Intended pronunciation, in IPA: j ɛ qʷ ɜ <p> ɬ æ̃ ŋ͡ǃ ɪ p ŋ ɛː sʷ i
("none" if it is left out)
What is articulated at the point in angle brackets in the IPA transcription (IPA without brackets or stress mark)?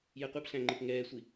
p